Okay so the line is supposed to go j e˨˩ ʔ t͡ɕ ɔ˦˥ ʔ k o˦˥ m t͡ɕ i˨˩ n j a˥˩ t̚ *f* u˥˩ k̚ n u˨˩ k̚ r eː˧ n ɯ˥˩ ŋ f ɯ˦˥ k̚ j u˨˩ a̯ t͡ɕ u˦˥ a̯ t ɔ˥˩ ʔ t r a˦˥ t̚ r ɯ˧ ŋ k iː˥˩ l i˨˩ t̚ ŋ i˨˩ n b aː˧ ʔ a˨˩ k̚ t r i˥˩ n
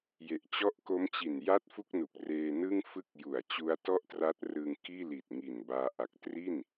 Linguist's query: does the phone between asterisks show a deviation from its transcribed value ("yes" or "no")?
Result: no